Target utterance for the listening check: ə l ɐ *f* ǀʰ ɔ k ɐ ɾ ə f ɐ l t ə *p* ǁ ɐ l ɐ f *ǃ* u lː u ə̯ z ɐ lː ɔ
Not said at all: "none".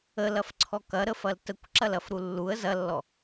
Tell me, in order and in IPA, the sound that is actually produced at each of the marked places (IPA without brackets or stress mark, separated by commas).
f, kʷ, ɾ